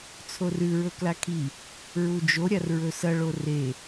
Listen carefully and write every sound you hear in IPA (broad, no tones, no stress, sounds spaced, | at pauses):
t͡sʰ o r ʉ ɹ ɵ k l a kʰ i | ɹ u d͡ʒ o ɾʲ a r ɹ ɵ s ɐ ɭ o r e